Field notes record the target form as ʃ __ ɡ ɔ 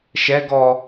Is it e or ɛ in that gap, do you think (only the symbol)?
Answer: ɛ